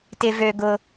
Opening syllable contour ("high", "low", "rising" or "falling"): high